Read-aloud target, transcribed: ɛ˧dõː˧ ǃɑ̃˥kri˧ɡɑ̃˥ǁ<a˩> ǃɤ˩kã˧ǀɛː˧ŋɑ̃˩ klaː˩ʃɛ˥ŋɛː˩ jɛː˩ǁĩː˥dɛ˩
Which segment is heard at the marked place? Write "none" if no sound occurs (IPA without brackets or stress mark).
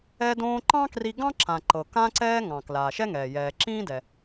ã˩